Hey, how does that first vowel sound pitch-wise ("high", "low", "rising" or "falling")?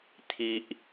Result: high